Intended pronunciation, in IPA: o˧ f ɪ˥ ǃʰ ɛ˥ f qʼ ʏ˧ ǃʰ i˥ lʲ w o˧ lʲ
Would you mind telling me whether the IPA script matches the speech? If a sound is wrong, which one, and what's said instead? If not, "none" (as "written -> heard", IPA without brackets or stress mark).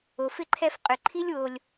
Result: none